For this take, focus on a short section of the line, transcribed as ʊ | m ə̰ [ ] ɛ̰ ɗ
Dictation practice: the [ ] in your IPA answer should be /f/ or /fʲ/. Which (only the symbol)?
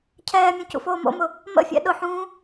fʲ